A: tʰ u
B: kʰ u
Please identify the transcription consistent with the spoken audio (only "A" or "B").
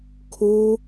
B